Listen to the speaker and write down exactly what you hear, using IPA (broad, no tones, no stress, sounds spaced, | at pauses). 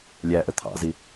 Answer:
lʲ æ ʔ ə t̪ʰ ɑ̰ z i